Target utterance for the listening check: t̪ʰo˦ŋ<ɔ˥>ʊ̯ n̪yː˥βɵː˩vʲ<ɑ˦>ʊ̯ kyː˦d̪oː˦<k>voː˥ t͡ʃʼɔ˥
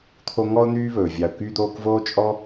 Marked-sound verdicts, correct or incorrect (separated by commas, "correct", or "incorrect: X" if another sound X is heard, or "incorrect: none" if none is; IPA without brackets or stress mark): correct, incorrect: ɑ˨, correct